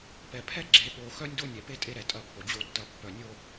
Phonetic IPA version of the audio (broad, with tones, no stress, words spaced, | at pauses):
pɛ˨pʰɛ˦ ɡ͡ǁe˨ɠo˨ xœ˦nʲdo˦nʲɛ˨pe˦ tʼe˦ɾɛ˨ tʼɐ˦˨pːo˨d͡ʑo˦tːɐ˦˨ pːœ˨nʲo˦